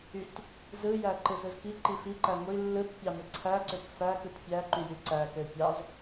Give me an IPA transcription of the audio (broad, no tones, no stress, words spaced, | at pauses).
yt | zɯjæ ǃɯzɯzkiǃi fiǃæ ŋʷi lːɯt pʲɑmɯǀʰæǀøk fækɯt pʲæǃy jyǀækø pʲɑz